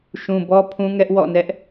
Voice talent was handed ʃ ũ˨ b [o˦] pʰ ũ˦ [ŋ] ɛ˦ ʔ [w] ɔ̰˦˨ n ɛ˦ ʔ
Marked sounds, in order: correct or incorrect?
incorrect: ɔ˦, correct, correct

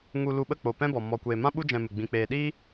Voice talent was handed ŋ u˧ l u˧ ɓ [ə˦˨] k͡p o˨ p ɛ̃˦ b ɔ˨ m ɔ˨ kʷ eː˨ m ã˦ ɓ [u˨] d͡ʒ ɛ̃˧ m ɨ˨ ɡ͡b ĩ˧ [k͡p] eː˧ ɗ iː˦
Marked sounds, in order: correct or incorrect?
correct, incorrect: u˦, correct

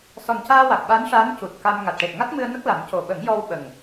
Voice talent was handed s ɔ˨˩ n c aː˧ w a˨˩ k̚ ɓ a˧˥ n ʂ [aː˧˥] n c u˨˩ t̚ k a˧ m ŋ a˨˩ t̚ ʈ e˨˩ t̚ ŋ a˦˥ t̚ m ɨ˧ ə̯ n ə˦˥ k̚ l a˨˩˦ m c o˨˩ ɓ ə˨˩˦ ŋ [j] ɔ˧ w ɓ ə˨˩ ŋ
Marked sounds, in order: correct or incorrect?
correct, correct

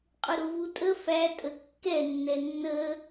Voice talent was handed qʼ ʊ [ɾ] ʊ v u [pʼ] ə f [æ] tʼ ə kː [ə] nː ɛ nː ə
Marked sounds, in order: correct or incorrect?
correct, incorrect: tʼ, correct, incorrect: ɛ

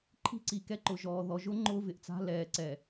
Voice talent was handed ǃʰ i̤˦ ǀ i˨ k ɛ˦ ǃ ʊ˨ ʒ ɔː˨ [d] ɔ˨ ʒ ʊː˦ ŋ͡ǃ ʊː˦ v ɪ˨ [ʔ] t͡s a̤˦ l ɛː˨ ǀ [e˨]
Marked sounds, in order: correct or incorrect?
incorrect: ð, correct, incorrect: ɛ˨

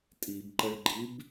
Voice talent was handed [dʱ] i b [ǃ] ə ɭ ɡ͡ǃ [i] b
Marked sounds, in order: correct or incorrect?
incorrect: tʼ, correct, correct

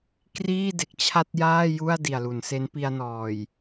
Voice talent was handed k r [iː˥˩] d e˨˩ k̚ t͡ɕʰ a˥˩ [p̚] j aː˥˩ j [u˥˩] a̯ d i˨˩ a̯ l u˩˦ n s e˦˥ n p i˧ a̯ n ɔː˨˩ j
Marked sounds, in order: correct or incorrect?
correct, incorrect: t̚, correct

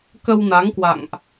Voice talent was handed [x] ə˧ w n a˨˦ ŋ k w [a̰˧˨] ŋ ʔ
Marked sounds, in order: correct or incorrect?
incorrect: k, correct

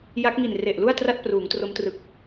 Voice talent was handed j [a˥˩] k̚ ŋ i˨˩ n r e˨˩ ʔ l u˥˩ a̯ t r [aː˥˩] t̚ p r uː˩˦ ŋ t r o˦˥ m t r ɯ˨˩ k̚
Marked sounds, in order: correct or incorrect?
incorrect: a˦˥, incorrect: a˥˩

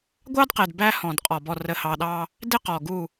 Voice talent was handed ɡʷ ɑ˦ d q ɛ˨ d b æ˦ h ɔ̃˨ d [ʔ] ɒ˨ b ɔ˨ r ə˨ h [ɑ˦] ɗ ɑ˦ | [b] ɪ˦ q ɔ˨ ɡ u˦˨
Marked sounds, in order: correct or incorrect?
incorrect: qʼ, incorrect: ɑ˨, incorrect: d

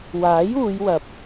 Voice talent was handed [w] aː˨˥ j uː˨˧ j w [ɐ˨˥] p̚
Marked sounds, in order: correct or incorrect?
correct, incorrect: ɐ˨

